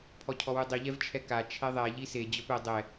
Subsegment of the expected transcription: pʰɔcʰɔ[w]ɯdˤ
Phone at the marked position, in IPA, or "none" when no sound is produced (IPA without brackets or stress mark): w